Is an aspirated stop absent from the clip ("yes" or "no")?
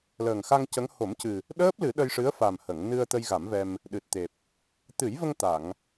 yes